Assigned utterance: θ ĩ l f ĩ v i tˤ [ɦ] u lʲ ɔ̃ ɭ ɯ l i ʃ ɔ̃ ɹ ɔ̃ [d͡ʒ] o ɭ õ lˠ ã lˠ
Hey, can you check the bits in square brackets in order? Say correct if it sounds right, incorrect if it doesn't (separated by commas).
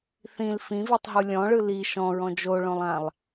correct, correct